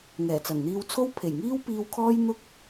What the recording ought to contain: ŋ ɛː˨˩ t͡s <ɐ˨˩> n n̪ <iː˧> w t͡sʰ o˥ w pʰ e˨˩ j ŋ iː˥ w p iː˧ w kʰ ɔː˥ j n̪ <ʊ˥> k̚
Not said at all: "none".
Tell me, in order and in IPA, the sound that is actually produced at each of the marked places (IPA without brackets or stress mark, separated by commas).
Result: ɐ˨˩, iː˧, ʊ˥